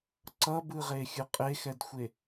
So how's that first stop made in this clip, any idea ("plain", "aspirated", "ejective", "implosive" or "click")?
click